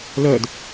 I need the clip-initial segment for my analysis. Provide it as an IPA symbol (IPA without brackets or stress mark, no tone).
l